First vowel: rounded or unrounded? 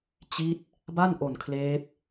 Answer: unrounded